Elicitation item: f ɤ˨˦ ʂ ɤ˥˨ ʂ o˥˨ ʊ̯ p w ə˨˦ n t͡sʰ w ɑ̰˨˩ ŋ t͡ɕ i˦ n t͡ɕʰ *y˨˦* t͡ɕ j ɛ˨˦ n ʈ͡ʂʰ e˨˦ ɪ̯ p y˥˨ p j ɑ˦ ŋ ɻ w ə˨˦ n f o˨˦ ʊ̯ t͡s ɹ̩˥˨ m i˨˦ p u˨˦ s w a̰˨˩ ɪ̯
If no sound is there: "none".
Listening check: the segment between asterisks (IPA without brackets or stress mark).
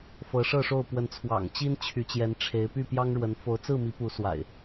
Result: y˨˦